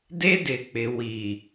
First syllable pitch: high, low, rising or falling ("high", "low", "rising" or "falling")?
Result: high